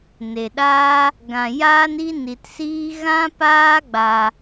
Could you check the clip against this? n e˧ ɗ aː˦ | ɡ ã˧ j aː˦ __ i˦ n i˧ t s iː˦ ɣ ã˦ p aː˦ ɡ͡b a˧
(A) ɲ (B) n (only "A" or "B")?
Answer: B